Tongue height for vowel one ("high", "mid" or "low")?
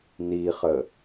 high